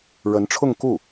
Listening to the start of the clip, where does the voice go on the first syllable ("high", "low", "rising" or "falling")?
rising